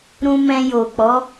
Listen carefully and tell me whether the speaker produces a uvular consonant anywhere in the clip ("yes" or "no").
no